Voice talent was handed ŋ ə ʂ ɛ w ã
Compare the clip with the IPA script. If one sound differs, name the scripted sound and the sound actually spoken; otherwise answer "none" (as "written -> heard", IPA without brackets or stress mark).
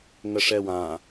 none